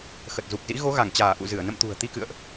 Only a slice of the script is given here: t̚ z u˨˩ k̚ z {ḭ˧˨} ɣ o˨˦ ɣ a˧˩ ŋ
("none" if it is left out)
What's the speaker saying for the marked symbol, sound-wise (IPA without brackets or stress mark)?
ḭ˧˥